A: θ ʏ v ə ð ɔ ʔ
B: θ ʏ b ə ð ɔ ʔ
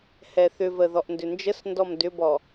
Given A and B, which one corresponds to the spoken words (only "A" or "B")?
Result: A